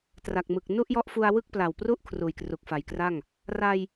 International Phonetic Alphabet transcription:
t r a˨˩ k̚ m ɯ˨˩ k̚ n u˥˩ ʔ j ɔ˦˥ ʔ f u˧ a̯ w ɯ˥˩ k̚ p l a˨˩ w p r u˥˩ ʔ kʰ r uː˨˩ j k r u˨˩ k̚ f a˩˦ j k r a˥˩ ŋ | r a˧ j

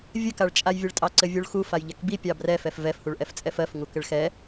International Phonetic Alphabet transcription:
vʲ ɘ k a ɭ t͡ʃʼ a j vʲ ɘ ɭ tʼ ɑ ǀ ɘ vʲ u ɭ x u f a j ʎ ɛ k b i pʲ ɑ b r ɛ f ɛ f v ɛ f h u ɭ ʔ ɛ f t͡sʼ ɛ f ɜ f ŋ u k ɘ ɭ x ɛ

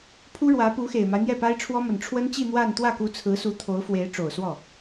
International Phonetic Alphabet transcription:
pʰ u˥ ɻ w ä˧˥ p u˧˥ x e˨˩ ɪ̯ m a˦ ɪ̯ n̪ j ɛ˥˩ p a˥ ɪ̯ ʈ͡ʂʰ w ɔ˥ m ə˨˩ n ʈ͡ʂʰ w ə˥ n t͡ɕ i˥˧ n̪ w a˥˧ n t̪ w ä˥˩ k u˧˥ t͡sʰ ɹ̩˧˥ s u˧˥ t̪ʰ o˧˥ ʊ̯ f w e˧˥ ɪ̯ ʈ͡ʂ o˨˩ ʊ̯ s w ɔ˥˩

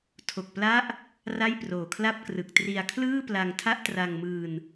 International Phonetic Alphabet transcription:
tʰ o˨˩ k̚ p l a˦˥ ʔ | r a˥˩ j p r oː˨˩ kʰ l a˥˩ p̚ k r ɯ˨˩ k̚ t r i˧ a̯ kʰ l ɯː˥˩ p l a˧ ŋ tʰ a˥˩ ʔ t r a˧ ŋ m ɯː˧ n

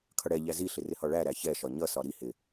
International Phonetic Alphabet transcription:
kʰ ʌ ɽ ɛ ʎ æ z i ɬ ɪ r ɪ h ɒ ɭ æ ɾ æ ç ɛ ʃ ɒ ɲ ʌ s ɒ ɾ i h ɪ

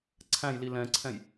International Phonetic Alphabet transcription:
ǀʰ æ̃ j l i l ɛ̃ ǀʰ ɛ̃ j

